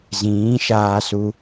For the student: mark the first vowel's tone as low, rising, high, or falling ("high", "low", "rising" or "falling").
rising